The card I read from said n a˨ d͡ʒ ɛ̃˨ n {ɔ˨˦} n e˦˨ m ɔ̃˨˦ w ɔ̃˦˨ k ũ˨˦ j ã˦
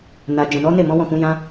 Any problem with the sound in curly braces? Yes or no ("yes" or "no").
no